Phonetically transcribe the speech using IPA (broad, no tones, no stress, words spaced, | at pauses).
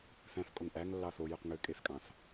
θæ̃θkʼoŋ ʔæŋ lːɑθojøq ŋø kʼeθkʼɑ̃θ